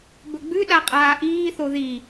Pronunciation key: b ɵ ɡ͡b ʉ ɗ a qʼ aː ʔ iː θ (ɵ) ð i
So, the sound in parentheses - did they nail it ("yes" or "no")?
no